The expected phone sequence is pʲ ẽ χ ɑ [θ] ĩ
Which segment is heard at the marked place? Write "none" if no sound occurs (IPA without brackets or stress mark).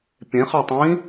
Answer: tˤ